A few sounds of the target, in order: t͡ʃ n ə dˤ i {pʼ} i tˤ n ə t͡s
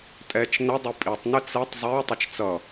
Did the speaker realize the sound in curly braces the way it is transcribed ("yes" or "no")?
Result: yes